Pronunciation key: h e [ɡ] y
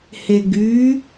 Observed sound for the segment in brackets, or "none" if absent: ɡ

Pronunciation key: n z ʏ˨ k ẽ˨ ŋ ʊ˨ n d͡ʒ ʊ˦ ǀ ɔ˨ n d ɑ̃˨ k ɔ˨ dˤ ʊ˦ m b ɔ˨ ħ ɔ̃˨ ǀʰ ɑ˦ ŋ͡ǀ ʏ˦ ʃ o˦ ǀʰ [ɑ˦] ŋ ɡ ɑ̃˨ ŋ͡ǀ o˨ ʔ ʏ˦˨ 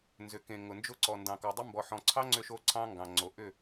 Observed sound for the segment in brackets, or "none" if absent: ɑ̃˦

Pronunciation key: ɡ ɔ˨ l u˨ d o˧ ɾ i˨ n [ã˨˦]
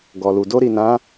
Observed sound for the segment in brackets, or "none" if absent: ã˨˦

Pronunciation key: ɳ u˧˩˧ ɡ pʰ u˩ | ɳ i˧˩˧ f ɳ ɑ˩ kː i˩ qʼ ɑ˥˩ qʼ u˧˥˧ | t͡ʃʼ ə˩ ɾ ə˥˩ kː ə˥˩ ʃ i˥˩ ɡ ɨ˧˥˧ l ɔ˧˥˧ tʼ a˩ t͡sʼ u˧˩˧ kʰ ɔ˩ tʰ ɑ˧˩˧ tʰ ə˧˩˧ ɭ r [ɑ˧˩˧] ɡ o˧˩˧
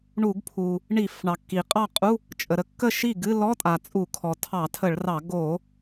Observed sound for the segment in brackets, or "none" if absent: ɑ˧˩˧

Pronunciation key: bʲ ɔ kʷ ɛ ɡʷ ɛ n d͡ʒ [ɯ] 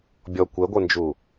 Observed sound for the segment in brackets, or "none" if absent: u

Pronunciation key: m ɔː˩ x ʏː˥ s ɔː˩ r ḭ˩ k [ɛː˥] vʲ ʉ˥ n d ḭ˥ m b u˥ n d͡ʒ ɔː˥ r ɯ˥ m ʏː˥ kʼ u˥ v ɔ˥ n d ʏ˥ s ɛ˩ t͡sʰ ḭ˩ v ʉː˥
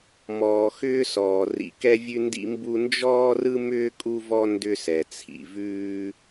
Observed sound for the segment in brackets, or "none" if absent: ɛ˥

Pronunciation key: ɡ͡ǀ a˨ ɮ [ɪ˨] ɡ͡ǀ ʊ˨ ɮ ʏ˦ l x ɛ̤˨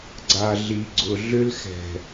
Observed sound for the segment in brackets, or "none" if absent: i˨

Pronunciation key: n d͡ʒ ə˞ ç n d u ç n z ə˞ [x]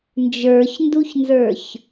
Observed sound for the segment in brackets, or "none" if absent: ç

